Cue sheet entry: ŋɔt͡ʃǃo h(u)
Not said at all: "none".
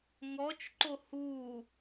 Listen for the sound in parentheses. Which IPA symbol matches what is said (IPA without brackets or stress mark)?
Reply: u